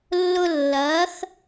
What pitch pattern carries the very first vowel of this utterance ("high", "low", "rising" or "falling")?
high